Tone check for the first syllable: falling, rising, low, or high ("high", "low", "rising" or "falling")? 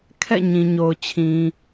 falling